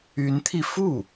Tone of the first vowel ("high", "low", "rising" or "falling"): rising